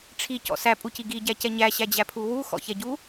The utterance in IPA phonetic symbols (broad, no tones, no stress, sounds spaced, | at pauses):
ʈ͡ʂʰ i c ɔ̰ s æ pʼ u c i ɡ i ɟ æ c ɛ ɲ æ ɕ æ d͡ʑ æ pʰ u w u x ɔ̰ ç ɛ ɟ u